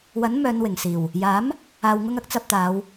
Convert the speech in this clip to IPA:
w ɐ˨˥ n m œː˨˧ n w ɪ˨˩ ŋ s iː˨˩ w | j aː˨˥ m | aː˨ w ŋ ʊ˧ ŋ ɐ˥ k̚ t͡s ɐ˧ p̚ t̪ aː˨˧ w

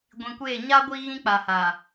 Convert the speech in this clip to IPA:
ɡʷ ĩ˨ kʷ eː˦˨ ɲ a˦ ɡʷ i˦ ɣ ĩ˦ k͡p a˨ h a˨

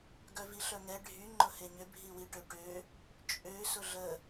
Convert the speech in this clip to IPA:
ɡ œ v i ɬ œ ŋ ɛ ɖʱ y ŋ͡ǃ ʊ h e ɲ ʏ bʱ i w i ʈ ø ʈ ø | t͡ʃʼ ø s ʊ ɮ ə

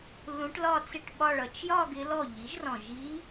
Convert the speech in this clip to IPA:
l ũ˧˥ ʈ l ɒ˥˧ t͡s ɪ˥˩ ʈ ɓ ɒ˥˧ ɭ ʌ˩˧ t͡ʃ j ɒ˥˧ ɡ ɪ˧˥ l ɔ˥˩ ʎ i˩˥ ʒ r ɔ̃˨˩ ʒ i˧˥

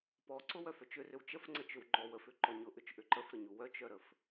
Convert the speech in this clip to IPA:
p ɔ ǀ ʊ w œ f œ t͡ʃ ʏ r ʏ w t͡ʃ ə f ŋ͡ǀ ə t͡ʃ ʏ w ŋ͡ǃ ɔ w ə f ʏ ǃ ɔ ɲ ʊ ʔ ʏ t͡ʃ ʔ ʏ ǃ ə f ɾ ə ɲ u w œ t͡ʃ œ ɾ ə f

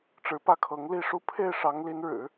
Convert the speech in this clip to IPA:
ʈ͡ʂ ɻ̩˧˥ p ä˥˩ kʰ ɤ˧˥ ŋ l i˥˧ ʂ u˥˧ pʰ e˥˩ ɪ̯ ʂ ɑ˧˥ ŋ l i˧˥ n ɻ ɻ̩˨˩˦

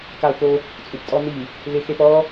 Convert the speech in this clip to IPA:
k a u̯ k o | t͡sʼ u p tʼ ɔ n̪ i | l ɪ x e p ɔ

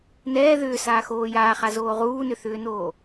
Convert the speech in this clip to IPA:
n ɛː ð ʏː s aː x oː j aː χ a z oː ʁ uː n ʏ θ ʏː n oː

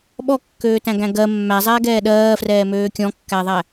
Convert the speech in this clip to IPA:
ɓ ɔ kː øː t æ̃ ɡ æ̃ ɡ ɜ mː æ zˤ ɛː ɡ ɛː ɗ ɜː f r ɛː m øː kʲ ɔ̃ kː æ ðˤ æ

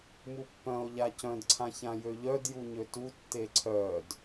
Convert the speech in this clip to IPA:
m u pː œ̃ o̯ ʎ a c œ̃ d ǀʰ ã ç ã j ø ʎ œ d j u ɲ ø t u tː e ǀʰ œ d

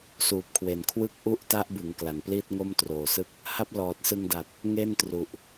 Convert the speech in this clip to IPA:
s uː˨˩ p̚ kʰ w e˨˩ n kʰ w ɯ˥˩ k̚ ʔ u˦˥ ʔ t a˦˥ ʔ b ɯ˩˦ ŋ k l a˨˩ n p l iː˥˩ t̚ ŋ o˥˩ m t r oː˨˩ s ɯ˥˩ k̚ | h a˦˥ p̚ l ɔː˨˩ t̚ s ɯ˧ ŋ d a˨˩ t̚ | ŋ e˥˩ n t r u˨˩ ʔ

